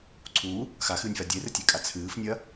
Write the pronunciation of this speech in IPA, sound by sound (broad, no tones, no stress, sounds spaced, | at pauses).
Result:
ǀʰ u | x a x ɨː nʲ f a dʲ e r ɨ tʲ e kʼ a t͡sʰ ɨː f nʲ ɐ